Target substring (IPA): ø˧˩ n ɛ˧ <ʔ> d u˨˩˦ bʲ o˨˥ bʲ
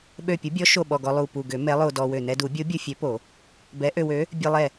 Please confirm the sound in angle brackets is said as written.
no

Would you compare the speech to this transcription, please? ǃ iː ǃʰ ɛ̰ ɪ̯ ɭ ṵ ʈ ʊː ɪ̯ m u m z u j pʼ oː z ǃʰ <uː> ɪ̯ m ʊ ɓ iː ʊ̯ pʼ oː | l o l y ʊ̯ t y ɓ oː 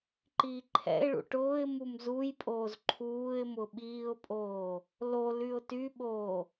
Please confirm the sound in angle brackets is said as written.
yes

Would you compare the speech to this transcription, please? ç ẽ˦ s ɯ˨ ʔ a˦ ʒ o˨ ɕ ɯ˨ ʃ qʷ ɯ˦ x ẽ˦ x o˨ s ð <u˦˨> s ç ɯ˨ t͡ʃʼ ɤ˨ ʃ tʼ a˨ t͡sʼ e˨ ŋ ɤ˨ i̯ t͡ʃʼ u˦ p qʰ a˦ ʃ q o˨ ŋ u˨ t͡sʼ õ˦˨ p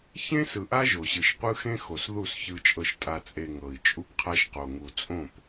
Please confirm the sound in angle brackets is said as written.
yes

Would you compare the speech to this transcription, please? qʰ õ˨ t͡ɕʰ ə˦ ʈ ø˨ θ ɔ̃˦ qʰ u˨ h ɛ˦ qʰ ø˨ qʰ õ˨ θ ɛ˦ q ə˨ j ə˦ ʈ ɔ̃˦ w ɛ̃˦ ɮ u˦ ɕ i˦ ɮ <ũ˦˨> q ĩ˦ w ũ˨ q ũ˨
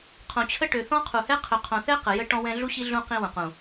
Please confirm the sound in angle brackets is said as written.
no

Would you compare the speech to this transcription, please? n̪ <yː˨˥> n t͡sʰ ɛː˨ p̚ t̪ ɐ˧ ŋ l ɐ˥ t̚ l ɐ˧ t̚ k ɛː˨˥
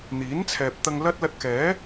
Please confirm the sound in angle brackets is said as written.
no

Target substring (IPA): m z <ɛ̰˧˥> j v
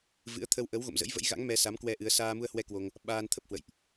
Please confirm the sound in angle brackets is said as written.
no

